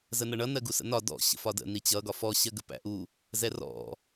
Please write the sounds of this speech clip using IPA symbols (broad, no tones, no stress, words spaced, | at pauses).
zənʌɳʌ nɜɡusə̰nɒ dɔ̰ ɕə̰fɒdə̰ nit͡ɕʌ ɡɒfɔ ɕɜɡəpæ̰ʔu | zɛrɔ̰